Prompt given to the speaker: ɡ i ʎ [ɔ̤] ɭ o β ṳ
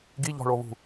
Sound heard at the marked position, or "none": ɔ̤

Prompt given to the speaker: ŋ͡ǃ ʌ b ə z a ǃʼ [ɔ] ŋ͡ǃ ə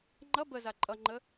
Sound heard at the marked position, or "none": ʌ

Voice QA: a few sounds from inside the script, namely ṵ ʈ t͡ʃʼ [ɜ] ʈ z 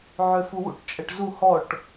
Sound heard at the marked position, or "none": ɜ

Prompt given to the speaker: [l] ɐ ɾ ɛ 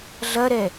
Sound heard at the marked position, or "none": ɮ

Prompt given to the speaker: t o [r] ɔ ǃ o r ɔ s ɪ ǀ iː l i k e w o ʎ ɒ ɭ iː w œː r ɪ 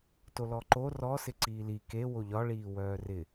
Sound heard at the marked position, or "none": l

